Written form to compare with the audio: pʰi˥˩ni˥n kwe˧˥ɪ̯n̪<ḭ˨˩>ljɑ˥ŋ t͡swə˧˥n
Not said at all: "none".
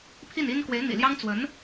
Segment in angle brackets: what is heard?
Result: ḭ˨˩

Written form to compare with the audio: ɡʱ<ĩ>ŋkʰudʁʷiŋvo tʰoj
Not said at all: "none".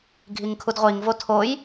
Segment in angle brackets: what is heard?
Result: i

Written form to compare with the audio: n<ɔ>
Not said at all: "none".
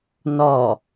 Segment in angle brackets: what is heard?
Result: ɔ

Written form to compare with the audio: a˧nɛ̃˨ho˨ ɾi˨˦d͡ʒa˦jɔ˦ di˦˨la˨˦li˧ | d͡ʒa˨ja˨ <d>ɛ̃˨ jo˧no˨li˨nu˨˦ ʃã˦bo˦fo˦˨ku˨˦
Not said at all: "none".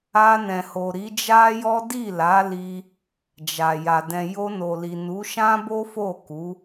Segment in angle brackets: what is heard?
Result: d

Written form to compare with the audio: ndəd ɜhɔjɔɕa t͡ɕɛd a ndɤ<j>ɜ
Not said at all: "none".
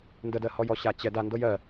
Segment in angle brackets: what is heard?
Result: j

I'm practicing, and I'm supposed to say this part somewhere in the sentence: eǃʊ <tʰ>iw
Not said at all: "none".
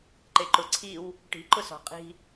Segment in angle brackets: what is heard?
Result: ǀʰ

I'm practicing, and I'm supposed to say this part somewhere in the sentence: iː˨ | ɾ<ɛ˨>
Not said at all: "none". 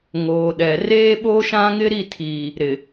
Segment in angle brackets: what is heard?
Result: ɪ˨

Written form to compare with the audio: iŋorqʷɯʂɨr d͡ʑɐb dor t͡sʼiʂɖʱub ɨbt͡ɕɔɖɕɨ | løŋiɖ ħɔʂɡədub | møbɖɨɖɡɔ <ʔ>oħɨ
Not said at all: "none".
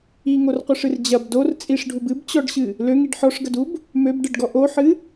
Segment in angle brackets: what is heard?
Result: ʔ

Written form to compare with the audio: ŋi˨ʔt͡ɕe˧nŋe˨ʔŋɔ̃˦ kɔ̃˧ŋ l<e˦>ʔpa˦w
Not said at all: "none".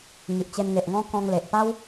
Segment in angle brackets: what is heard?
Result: e˨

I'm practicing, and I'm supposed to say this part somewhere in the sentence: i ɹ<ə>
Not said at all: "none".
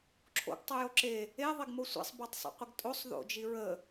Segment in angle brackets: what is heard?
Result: ə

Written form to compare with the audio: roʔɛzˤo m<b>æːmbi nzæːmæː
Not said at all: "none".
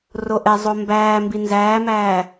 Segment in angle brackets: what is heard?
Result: b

